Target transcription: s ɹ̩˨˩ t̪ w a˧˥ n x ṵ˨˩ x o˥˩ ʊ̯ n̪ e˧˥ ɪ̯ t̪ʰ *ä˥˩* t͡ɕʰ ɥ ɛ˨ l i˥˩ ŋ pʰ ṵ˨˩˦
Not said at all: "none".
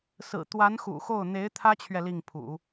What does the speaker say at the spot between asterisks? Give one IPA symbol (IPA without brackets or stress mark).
ä˥